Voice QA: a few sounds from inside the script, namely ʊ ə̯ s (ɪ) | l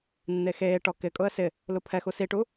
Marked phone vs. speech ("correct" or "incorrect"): correct